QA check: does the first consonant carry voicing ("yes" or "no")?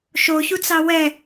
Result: no